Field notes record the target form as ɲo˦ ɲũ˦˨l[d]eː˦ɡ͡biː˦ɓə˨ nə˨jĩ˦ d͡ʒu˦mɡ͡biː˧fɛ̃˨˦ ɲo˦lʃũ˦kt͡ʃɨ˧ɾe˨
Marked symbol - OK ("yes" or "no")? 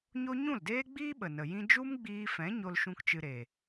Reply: yes